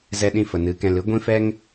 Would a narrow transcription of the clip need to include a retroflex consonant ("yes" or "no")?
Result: no